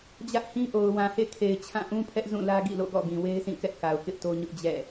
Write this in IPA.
d͡ʑ ä˦ ʔ h ĩ˦ ʔ o˨ ʊ̯ w ã˨ h ḛ˦˨ kʰ e˨ ɪ̯ t͡ɕʰ ã˦˨ ʔ ũ˦ pʰ ɛ˦ ʔ z ũ˦˨ l ä˦ ɡ ḭ˦˨ l o̰˦˨ ɡ ɔ̰˦˨ ɡ ĩ˨ w e˦ ɪ̯ sʰ ĩ˦˨ k ɛ˦ ʔ k a˨ ʊ̯ k ɪ˦ ʔ t o˦ ɲ ʊ˦ ʔ d͡ʑ ɛ̰˦˨

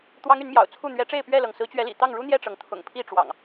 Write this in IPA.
t̪ w ɑ˦ ŋ y˨˦ n m j ɑ̰˨˩ ʊ̯ t͡sʰ u˥˨ n̪ ɥ ɛ˨˦ ʈ͡ʂ e˥˨ ɪ̯ p ɥ ɛ˥˨ l ɤ˩ ŋ s ɹ̩˨˦ t͡ɕ ɥ ɛ˨˦ l ḭ˨˩ t̪ ɑ˥˨ ŋ ɻ u˦ n̪ j ɛ˥˨ ʈ͡ʂ ɤ˩ ŋ t̪ʰ ʊ̰˨˩ ŋ pʰ i˥˨ ʈ͡ʂ w ɑ̰˨˩ ŋ

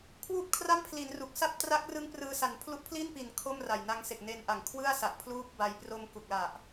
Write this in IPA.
kʰ w uː˥˩ p̚ kʰ r a˥˩ m pʰ l i˩˦ n r u˨˩ k̚ s a˥˩ p̚ t r a˦˥ k̚ r ɯ˦˥ ŋ p r ɯː˧ s a˨˩ n pʰ l u˥˩ ʔ pʰ l i˥˩ n p i˨˩ n kʰ o˥˩ m r a˨˩ j n a˧ ŋ s e˨˩ k̚ n e˧ n ʔ a˨˩ ŋ kʰ w ɯ˥˩ a̯ s a˨˩ ʔ pʰ l uː˦˥ p̚ b a˧ j p r o˧ m k u˨˩ k̚ l a˨˩ ʔ

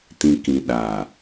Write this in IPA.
t ĩ˨ k ĩ˨ ɗ aː˨

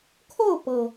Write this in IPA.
kʰ o˥˨ ʊ̯ p ɤ˩

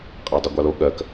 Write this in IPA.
qʼ a dˤ u ɡʷ ɑ l o ɠ ɜ k

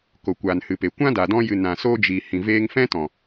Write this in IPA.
k o˨ kʷ aː˨ n h ɨ˨ p e˨ kʷ ã˦ d a˨ d ɔ̃˧ j ɨ˨ n ã˨ s oː˧ d͡ʒ i˨ h ĩ˨ v eː˧ ŋ f ɛ̃˦ t ɔ̃˨

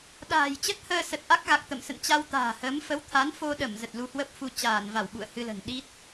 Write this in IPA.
ɗ a̤ː˨˩ j t͡ɕ ə˦˥ t̚ h əː˧ s ə˨˩ t̚ ʔ a˦˥ k̚ ɣ a˨˩ k̚ t̪ ə̰˧˨ m s ə̰˧˨ n t͡ɕ a˧ w t̪ a̤ː˨˩ h əː˨˦ m f ə˨˦ w t̪ʰ a˨˦ n f o˧ ɗ ə˧˩ m z ə˨˩ t̚ l u˧ h w ə˦˥ p̚ f u˧ t͡ɕ aː˧˩ n v a˧˩ w ɓ ṵ˧˨ ə̯ h ɨ˧ l ə̤˨˩ n ɗ i˦˥ t̚

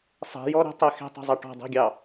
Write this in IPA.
sˤ ɛ̤ j ɔ ɾ ə̤ tˤ ɛ x ɛ̤ tˤ ɛ̤ zˤ a ʈ ɔ̤ dˤ ɛ̤ ɡʲ ɑ

